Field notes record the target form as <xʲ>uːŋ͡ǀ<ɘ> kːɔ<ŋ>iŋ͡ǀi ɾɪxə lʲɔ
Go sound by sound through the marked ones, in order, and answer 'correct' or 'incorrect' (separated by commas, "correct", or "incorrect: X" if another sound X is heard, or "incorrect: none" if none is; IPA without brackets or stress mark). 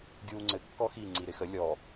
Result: incorrect: ɡʲ, correct, incorrect: x